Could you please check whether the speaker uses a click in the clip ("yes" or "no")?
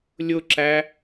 yes